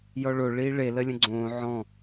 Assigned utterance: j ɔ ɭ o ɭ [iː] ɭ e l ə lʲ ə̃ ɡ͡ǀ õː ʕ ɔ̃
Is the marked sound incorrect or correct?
correct